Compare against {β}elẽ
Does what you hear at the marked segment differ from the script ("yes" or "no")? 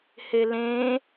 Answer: yes